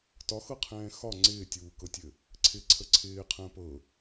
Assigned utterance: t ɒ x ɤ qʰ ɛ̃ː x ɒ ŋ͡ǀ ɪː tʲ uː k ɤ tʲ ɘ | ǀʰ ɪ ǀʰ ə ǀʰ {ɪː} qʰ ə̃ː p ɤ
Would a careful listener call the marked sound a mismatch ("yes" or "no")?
no